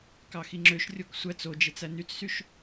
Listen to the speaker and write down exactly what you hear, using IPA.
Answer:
kɑxiŋ͡ǁøʃrʲok sʷæt͡s od͡ʒet͡s ænyt͡ssyʃ

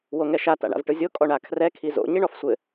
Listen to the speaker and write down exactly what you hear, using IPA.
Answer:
woŋɛʃa ta̰ɳa̰vʈɯzʲo kʼɔɳakʰrɛ kʰizo̰ ɲiɳɔfsʷɘ

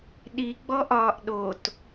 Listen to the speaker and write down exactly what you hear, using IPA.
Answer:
ɗi ɡ͡bɔʔɒːʔɗot

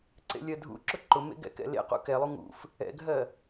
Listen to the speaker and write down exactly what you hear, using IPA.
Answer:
ǀḛlʲɜdʱṵǁʊ ǃʊmḛ ɡɛ̰kɛ̰lḛqṵ kɛlˠu ŋṵf | ɛ̰ɡʱɜ

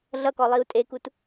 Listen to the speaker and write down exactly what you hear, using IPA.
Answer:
ɮʌkɔ lˠiu̯tʼekut

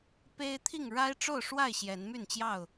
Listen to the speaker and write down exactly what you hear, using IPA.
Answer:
pe˦ɪ̯t̪ʰi˥˨ŋ ɻa˦ɪ̯ʈ͡ʂo˥˨ʊ̯ʂwa˥˨ɪ̯ ɕjɛ˨˦nmy˥˨nt͡ɕjɑ˥˨ʊ̯

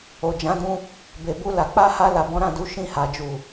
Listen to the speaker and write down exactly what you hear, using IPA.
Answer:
o˨d͡ʒã˨˦dũ˧ | be˨bu˧ la˨k͡pa˧ha˧ la˨bɔ̃˨˦ɾã˦˨du˨˦ ʃĩ˦˨ha˨d͡ʒu˨

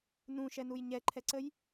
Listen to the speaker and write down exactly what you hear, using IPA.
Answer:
nũʃɛnuj ɲɛǃʰɛǀəj

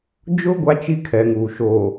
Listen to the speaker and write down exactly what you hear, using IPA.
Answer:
d͡ʒʊ˦ ɡʷa˦t͡ʃi˦kʰɛ˨ ŋuː˨ʃoː˨

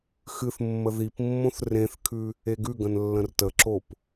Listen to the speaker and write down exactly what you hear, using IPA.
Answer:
xɨθ mːəðipmːõθ rẽθkʰʉ | eɡʉɡə̃n lːə̃rtəǁop

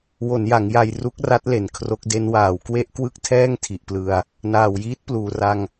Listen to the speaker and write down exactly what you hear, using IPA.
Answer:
wo˩˦nja˩˦ŋja˧j ru˦˥k̚ra˦˥t̚le˨˩n kʰro˦˥k̚de˦˥n waː˨˩wkwe˥˩ʔ kwɯ˥˩k̚tʰɛː˥˩ŋtʰi˨˩ʔplɯ˧a̯ | naː˨˩wjiː˦˥t̚pluː˨˩ra˧ŋ

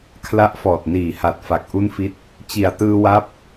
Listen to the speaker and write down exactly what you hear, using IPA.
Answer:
kʰla˦˥ʔfɔː˨˩t̚niː˨˩ ha˨˩t̚fa˨˩k̚ ʔu˥˩nfi˦˥t̚ | t͡ɕi˨˩a̯tɯː˧ wa˦˥p̚

